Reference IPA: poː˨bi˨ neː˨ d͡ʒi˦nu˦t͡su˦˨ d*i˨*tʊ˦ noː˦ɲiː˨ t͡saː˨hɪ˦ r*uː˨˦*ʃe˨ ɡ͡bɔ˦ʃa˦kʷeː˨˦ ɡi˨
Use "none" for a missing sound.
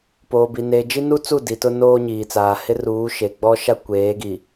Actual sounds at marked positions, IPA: i˨, uː˨˦

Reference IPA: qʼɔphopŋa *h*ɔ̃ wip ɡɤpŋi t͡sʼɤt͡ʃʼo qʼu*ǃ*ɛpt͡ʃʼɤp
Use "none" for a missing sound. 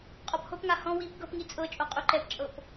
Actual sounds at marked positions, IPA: h, ǃ

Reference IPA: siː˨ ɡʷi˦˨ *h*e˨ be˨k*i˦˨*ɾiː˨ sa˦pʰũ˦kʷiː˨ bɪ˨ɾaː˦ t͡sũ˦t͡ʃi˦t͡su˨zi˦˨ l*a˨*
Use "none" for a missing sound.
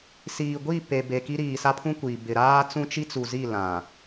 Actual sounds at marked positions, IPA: p, i˦, ã˨

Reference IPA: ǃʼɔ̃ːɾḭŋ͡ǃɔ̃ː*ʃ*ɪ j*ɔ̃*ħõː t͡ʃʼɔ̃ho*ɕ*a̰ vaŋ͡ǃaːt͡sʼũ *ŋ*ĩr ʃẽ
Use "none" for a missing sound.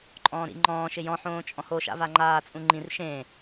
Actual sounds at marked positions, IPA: ʃ, ɔ̃, ʃ, ŋ͡ǃ

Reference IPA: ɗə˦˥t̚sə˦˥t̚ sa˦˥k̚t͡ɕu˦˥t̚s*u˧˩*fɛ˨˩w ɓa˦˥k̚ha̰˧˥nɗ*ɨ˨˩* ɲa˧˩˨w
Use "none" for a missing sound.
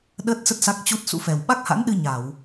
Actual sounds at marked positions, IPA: ṵ˧˥, ɨ˧

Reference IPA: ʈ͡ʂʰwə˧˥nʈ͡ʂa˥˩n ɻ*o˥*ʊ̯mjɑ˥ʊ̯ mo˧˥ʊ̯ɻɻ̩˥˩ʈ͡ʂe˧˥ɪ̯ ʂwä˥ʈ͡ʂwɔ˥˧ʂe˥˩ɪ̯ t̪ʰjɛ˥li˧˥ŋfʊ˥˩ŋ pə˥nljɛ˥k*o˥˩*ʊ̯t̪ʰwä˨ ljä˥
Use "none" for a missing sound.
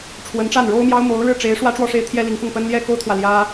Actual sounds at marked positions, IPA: o˥, o˥

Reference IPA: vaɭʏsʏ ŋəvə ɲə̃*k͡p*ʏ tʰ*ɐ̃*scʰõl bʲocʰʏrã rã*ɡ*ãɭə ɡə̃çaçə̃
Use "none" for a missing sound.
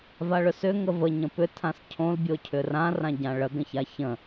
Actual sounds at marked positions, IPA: p, ã, ɟ

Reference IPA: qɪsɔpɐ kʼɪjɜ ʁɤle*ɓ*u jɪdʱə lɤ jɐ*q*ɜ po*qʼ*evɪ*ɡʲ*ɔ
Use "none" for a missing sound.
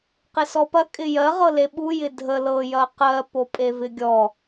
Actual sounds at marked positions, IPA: ɓ, q, pʼ, ɡʲ

